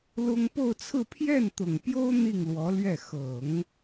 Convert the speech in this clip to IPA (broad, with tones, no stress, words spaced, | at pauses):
lʊ˥ŋ po˥˧ʊ̯t͡sʰɹ̩˥˧ pʰjɛ˥˩nt̪ʊ˨˩ŋpjo˥ʊ̯ n̪i˥˩ŋlwɔ˧˥lɥɛ˥˩ xɤ˨˩˦ŋ